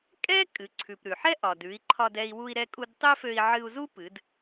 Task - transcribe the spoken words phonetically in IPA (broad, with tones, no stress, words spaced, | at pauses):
kʼɛ˥ kʼɨ˩˧ǀʰʉ˩p ɾʉ˩ħɛ˥ ʔɒ˩dʉ˩˧i̯ǃʰɒ˧dɛ˧i̯ wu˧i̯ɾɛ˧kʼu˧d tˤø˥fø˧i̯ ʕɨ˧u̯zu˥pɨ˩˧d